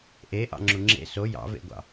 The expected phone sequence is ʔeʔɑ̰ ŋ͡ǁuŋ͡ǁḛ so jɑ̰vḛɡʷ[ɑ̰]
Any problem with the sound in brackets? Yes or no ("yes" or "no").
no